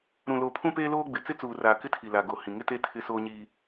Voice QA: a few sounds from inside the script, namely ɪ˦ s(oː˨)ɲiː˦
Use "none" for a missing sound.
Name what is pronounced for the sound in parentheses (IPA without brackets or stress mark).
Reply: oː˦